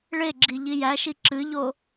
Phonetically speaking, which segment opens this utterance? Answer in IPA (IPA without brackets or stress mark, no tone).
ɭ